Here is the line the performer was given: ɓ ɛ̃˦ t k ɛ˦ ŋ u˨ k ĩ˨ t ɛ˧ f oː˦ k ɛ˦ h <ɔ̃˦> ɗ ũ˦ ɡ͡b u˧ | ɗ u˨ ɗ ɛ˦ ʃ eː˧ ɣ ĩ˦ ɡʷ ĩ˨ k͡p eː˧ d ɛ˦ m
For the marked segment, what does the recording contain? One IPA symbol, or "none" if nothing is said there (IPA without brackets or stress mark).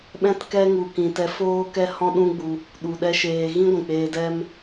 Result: ɔ̃˦